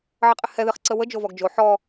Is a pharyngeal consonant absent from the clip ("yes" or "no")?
no